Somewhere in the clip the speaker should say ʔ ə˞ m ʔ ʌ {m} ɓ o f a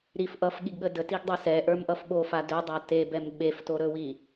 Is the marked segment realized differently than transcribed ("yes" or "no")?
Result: yes